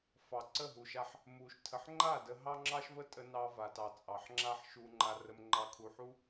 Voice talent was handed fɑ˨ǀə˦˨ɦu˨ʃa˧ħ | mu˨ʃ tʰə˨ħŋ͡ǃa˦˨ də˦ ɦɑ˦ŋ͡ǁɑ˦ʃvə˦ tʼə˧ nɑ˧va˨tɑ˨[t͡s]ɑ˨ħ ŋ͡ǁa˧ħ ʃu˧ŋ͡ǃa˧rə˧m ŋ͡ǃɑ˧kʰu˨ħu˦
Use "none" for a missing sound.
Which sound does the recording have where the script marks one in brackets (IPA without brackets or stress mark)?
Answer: t͡sʼ